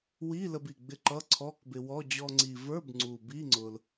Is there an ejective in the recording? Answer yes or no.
no